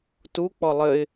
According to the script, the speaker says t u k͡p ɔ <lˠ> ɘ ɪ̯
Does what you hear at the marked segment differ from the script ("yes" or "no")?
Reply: no